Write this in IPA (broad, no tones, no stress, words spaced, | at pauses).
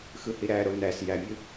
xɯhiɾæɾo næs jæmʲɯ